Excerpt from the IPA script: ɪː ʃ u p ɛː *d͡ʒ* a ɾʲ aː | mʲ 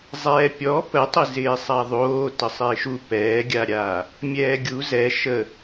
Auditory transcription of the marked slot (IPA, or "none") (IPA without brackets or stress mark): ɡʲ